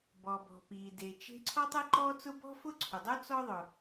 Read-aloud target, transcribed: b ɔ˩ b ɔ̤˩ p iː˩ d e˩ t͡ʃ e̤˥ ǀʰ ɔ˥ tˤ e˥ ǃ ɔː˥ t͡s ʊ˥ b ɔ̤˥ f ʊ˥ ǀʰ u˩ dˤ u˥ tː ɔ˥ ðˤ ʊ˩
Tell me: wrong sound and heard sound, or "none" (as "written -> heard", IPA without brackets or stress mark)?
tː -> t͡s